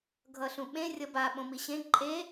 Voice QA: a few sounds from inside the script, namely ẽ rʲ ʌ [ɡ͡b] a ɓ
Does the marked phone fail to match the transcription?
yes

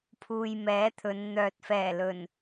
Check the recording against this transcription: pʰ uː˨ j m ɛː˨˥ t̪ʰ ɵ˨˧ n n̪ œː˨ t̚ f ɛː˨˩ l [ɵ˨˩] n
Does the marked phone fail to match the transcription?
no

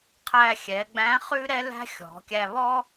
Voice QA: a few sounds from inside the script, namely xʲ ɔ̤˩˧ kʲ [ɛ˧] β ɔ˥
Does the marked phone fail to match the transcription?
yes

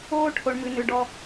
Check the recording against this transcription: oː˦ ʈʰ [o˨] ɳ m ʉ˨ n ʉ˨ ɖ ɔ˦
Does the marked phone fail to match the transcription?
no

